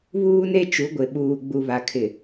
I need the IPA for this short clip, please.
βuː˦ne˦ t͡ʃu˨˦ɡʷɪ˨ɓuː˨ ɡ͡bu˨βa˨ kʰɪ˨

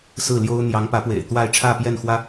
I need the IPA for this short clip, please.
sɹ̩˥˩ljo˥ʊ̯ n̪jɑ˧˥ŋpä˧˥pwḛ˨˩ɪ̯ t̪wa˥˧ɪ̯ ʈ͡ʂʰä˥˧pjɛ˥˩nxwä˥

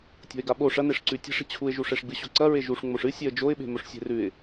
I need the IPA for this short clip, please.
tʲo̤ɪ̯ɡaɓo ʂɐ neʂǀʉtʲe̤ʂ i̤t͡ɕʰuɪ̯ʒu ʂeʂɡ͡bɨɕoǀɐ ɹeʒuʂ ŋ͡moʂɨ sʲeə̯d͡ʒoɪ̯ɓe̤ mɵʂsʲe̤rʉɪ̯

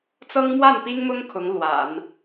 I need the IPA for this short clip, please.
t͡sɤ˥ŋmwa˥˩npi˥ŋmʊ˥ŋ kʰʊ˧˥ŋ lwa̰˨˩˦n

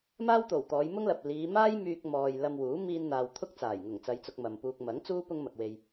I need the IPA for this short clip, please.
maː˥wt̪o˨˩w t̪ɔː˨˧jmʊ˥ŋ lɐ˨p̚ liː˨˧ maː˥jmyː˧k̚mɔː˨j lɐ˧mwuː˨˥ miː˧nn̪aː˨w t̪ʰʊ˥k̚t͡saː˨˩jŋʊ˨˩ŋ t͡sɐ˧jt͡sʊ˧k̚ mɐ˨mpuː˧k̚ mɐ˨˥ŋt͡suː˥ pʊ˥ŋ mɐ˨k̚we˨j

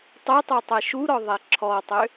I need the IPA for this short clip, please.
tˤɛtˤo tˤɛʃuɾɔ ðˤɛǁʰɔtˤø

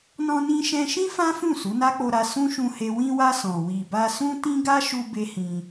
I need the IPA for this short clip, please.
nɔ̃˧nĩ˧ʃɛ̃˧ʃĩ˦ fã˦fũ˦˨ su˨˦na˦k͡po˧ɾa˧ sũ˦ʃũ˧he˧ wĩ˧wa˧ sɔ̃˨ wi˨ba˧sũ˦ tĩ˦ɡa˦ʃu˧ be˦hĩ˧

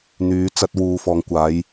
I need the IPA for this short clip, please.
n̪yː˨˧t͡sɐ˧t̚ wuː˨ fɔː˨ŋkʷaː˨˧j

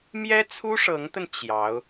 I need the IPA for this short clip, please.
mjɛ˥t͡sʰu˥ʂɤ˧˥ŋt̪ə˧n t͡ɕjɑ˧˥ʊ̯

